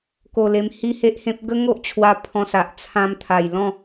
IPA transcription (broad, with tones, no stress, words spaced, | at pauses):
ko˧le˧m hi˦he˦ʔhẽ˦p̚ ɡə˦ŋo˦ʔt͡ɕʰwa˧ pʰɔ̃˧sa˨ʔ t͡sʰã˧mt̪ʰa˨˩jlɔ̃˥˧